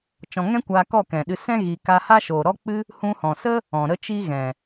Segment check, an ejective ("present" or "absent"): absent